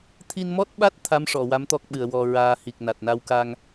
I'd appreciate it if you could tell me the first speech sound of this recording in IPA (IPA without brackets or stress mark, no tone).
t̪ʰ